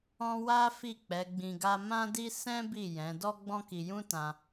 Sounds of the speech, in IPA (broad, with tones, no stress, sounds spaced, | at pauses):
ɔ̃˦ w a˦ f i˦˨ k͡p ɛ˨˦ ɡ͡b ĩ˧ ɡ a˦ m ã˦ d i˦ s ɛ̃˦ b i˦˨ j ɛ̃˨˦ d ɔ˦ ɡ͡b ɔ̃˦ k i˧ j ũ˦ t ã˧